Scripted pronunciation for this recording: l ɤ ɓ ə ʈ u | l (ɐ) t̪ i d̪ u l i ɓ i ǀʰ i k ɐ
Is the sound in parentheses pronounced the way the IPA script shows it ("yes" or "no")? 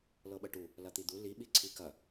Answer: yes